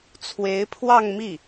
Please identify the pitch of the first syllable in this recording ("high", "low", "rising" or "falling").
rising